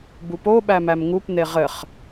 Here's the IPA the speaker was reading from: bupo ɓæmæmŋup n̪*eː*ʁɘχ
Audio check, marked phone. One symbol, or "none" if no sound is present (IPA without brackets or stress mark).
e